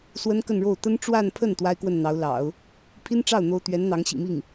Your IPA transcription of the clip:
s w ə˥ n k ə˥˧ n ɻ o˥˩ ʊ̯ t̪ ə˥ n ʈ͡ʂ w a˥˧ n pʰ ə˥˩ n t̪ w a˥ ɪ̯ k w ə˥˩ n n̪ ɑ˧˥ ʊ̯ l ɑ̰˨˩˦ ʊ̯ | pʰ i˥ n ʈ͡ʂ ɑ˥˩ ʊ̯ n̪ o˥ ʊ̯ t̪ ɥ ɛ˧˥ n n̪ ɑ˧˥ ŋ ɕ ḭ˨˩ m i˥˩ ŋ

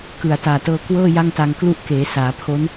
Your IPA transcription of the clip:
k ɯ˨˩ a̯ t aː˨˩ t ɤː˧ k w ɤː˥˩ j a˥˩ ŋ t a˧ ŋ k l u˥˩ ʔ k eː˩˦ s aː˩˦ pʰ o˦˥ n

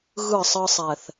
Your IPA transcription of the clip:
ɣ ɯ˦˨ sˤ ɯ˧ sˤ ɛ˨ θ

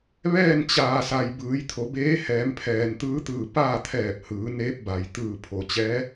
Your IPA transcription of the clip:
ʋ ɛː˥˨ n t͡ɕ aː˩ s a˩ j b ɯː˩˧ j t̪ʰ o˩˧ b eː˧˥ h ɛː˩˧ m pʰ ɛː˩ n t̪ ɯː˧˥ t̪ ɯː˧˩ p aː˥˨ t̪ʰ ɛː˧˩ p̚ h ɯː˩˧ n eː˧˥ p̚ b a˩ j t̪ ɯː˧˩ pʰ o˩ t͡ɕ ɛː˧˥

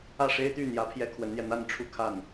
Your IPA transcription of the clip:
ä˥˩ ʂ e˥ ɪ̯ t̪ y˥˩ n̪ j ä˧˥ pʰ j ɛ˥ kʰ w ə˧˥ n n̪ j ɛ˧ n̪ a˥˧ n ʈ͡ʂʰ u˥˧ kʰ a˥˩ n

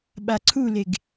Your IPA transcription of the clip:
ɓ a ǀʰ u l e ɡ

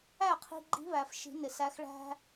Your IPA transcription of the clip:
æ˥˩ qʰ i̤˧ ɡ͡ǃ i̤˧˥ β æ˩ f ʃ i̤˨˩˦ n ɪ˩ s æ˧˥ x ɭ æ̤˥

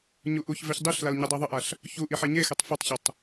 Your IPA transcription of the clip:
ɲ u ʔ u ç v e ç dˤ i ɬ l a l ɲ ɛ dˤ i ðˤ ə ʔ a ɬ | ç u ʔ i ħ e ɲ e x ɛ tˤ f y tˤ ç ə tˤ

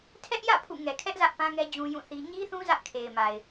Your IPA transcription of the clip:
tʰ ɛ˦ ʔ j ä̰˦˨ pʰ ṵ˦˨ ŋ ɛ˨ kʰ ɛ˦ ʔ z ä˦ ʔ p ã˦ ŋ ɛ˦ d͡ʑ ũ˦ j ũ˦˨ θ i˦ ɲ i˦ θ ũ˦ z ä˦ ʔ kʰ e˨ ɪ̯ m a˨ ɪ̯

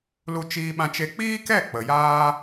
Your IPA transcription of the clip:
l u˧ t͡ʃ iː˧ ɓ ã˧ t͡ʃ e˧ k͡p iː˦ k ɛ˦˨ k͡p ə˨ j aː˧

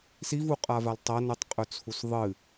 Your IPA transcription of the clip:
s i v u qʼ a v a l tˤ ɐ n ʉ tˤ qʼ ɵ t͡sʰ u s ðˤ ɨ

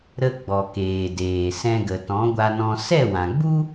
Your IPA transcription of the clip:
ɾ ə˧ ɡ͡b ɔ˨ k eː˨ d eː˨ s ɛ̃˧ ɡ ə˨ t ɔ̃˨˦ ɡʷ a˧ n ɔ̃˧ s ɛ˦˨ w ã˨ ɡ͡b u˦

